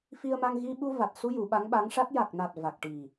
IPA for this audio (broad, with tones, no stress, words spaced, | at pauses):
fi˧ə̯ma˧ŋ ɣi˧ɓu˧ va˨˩t̚su˧ ju˨˩˦ɓa˧˥ŋɓa˧˥ŋʂa˦˥t̚ ja˨˩k̚na˨˩t̚ va˨˩k̚ʈi˨˩